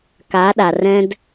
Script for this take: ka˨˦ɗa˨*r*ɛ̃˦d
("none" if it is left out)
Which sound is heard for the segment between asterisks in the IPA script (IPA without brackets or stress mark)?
r